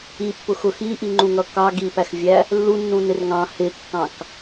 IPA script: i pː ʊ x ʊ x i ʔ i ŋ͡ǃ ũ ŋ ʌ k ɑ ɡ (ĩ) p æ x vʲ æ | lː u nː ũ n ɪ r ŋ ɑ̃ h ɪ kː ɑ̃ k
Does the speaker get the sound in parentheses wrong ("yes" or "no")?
yes